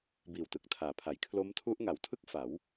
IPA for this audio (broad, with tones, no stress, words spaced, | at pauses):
biː˨˩wtɯ˨˩k̚tʰaː˩˦pʰa˩˦j kʰlo˦˥mtʰu˦˥ʔ ŋa˩˦wtʰɯ˥˩k̚ fa˩˦w